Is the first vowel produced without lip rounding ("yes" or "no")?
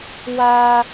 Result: yes